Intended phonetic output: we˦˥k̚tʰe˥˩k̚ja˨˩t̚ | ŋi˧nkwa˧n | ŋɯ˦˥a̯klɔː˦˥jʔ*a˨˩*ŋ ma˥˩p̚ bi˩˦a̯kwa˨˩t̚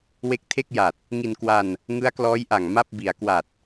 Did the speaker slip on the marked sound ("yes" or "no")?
no